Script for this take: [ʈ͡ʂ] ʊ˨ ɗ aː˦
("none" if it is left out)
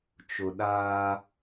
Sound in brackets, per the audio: t͡ʃ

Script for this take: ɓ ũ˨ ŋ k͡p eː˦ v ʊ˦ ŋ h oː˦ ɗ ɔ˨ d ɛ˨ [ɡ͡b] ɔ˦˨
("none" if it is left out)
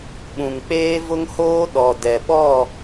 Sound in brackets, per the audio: ɓ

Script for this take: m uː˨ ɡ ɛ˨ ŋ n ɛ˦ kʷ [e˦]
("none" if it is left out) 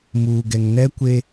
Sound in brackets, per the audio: e˦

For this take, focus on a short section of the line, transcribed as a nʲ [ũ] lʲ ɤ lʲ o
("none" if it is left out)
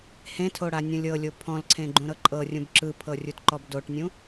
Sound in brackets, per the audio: ũ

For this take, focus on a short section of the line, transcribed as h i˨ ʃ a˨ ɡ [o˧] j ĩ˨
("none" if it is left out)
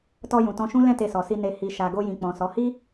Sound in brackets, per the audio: o˧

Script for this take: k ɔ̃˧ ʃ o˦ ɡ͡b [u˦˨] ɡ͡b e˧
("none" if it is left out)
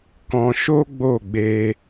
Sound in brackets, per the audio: o˦˨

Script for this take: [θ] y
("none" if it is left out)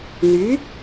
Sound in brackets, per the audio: n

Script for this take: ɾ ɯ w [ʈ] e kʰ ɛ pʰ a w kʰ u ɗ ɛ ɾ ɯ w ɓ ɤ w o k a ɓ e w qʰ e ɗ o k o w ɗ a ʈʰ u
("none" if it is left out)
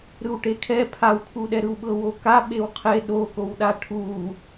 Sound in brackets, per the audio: ʈ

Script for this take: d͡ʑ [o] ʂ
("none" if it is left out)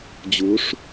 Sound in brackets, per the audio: u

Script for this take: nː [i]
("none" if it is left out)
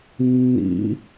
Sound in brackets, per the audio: ḭ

